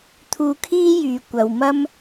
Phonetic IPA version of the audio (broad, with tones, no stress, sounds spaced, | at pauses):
t̪ʰ uː˧ kʰ iː˥ j yː˨ kʷ ɐ˨ w m ɐ˥ m